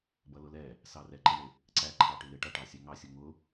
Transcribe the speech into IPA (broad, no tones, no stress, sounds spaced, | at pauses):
b ʌ l ʊ l ɛ | s ɑ r ɛ ǃ ɪ ɳ ɪ | ǀ æ ǃʰ ɑ ʈ ɪ l ɪ ʈ ʌ ʈ ɑ sʲ æ ŋ ɑ sʲ ʊ ŋ ʊ